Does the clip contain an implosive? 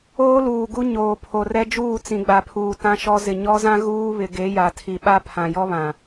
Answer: yes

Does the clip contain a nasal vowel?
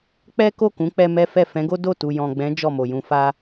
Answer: yes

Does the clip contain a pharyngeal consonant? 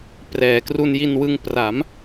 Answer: no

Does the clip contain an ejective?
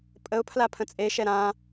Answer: yes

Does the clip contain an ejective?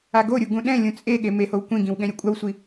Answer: yes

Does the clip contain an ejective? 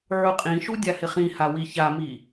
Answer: yes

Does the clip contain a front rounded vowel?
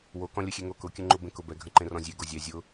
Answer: no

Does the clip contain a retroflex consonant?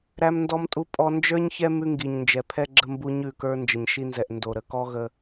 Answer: no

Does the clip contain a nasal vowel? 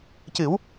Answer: no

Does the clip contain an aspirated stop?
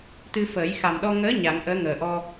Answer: no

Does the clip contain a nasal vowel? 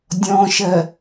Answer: yes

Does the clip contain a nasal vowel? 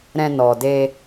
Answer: yes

